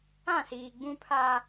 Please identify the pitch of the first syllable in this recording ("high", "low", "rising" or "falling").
falling